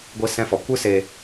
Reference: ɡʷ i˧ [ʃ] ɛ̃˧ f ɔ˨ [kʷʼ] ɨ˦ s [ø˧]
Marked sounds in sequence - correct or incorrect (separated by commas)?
incorrect, incorrect, incorrect